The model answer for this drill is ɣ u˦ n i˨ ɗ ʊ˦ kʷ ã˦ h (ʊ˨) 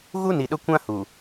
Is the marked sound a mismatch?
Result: yes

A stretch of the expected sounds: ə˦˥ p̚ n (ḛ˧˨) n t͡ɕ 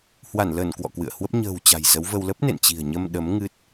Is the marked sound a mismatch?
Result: no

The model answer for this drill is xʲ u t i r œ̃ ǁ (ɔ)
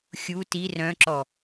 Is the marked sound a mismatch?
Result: no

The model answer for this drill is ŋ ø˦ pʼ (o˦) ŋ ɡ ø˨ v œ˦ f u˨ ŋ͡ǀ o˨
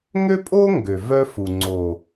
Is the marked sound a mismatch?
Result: no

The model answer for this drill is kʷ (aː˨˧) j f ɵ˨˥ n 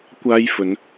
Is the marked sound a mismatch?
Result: yes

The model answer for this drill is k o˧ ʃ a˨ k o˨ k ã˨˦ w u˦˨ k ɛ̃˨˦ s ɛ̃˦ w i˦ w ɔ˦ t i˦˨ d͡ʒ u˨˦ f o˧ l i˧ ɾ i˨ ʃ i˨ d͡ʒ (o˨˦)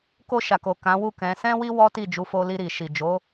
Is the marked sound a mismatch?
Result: no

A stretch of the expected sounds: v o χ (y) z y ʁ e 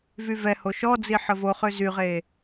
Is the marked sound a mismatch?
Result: yes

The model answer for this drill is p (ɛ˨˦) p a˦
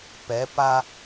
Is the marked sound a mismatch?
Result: no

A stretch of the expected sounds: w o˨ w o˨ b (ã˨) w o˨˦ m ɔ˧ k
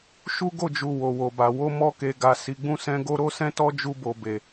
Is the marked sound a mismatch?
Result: yes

